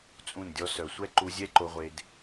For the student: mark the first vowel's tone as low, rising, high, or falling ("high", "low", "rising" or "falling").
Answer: falling